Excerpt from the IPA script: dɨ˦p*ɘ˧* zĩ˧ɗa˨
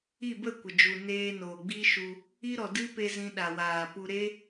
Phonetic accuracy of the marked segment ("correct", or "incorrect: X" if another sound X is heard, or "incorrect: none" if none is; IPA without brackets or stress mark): incorrect: e˧